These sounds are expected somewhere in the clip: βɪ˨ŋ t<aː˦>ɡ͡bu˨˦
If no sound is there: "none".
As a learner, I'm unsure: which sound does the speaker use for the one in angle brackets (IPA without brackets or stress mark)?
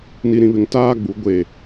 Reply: aː˦